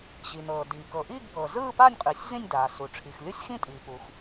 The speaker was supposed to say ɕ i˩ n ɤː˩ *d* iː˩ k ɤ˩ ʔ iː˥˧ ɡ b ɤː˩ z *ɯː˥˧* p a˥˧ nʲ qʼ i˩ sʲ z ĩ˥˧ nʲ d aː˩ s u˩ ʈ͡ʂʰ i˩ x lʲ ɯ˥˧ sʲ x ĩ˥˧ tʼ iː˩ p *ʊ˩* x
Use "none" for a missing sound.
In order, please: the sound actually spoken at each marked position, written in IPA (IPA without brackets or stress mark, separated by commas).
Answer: d, ɯː˥˧, u˩